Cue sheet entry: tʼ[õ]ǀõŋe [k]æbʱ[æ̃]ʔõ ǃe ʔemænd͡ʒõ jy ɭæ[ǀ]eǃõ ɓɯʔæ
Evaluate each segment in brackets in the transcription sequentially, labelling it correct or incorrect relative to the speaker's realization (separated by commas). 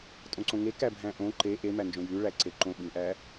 correct, correct, correct, correct